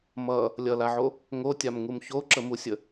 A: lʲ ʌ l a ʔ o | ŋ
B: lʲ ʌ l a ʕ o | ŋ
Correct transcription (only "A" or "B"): B